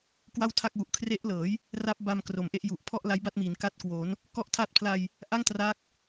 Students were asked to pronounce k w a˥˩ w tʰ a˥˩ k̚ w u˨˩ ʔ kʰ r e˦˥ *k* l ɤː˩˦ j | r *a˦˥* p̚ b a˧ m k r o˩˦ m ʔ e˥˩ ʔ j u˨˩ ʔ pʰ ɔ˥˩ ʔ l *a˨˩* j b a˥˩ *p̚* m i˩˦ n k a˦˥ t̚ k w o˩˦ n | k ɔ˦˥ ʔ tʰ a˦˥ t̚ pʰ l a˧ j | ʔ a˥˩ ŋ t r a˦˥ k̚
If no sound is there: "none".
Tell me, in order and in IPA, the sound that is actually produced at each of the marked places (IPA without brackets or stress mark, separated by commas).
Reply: ʔ, a˦˥, a˦˥, t̚